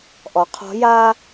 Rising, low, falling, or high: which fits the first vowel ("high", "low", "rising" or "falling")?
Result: rising